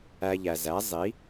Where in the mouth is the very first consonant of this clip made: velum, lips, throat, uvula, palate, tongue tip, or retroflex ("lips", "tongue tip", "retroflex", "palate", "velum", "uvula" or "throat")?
palate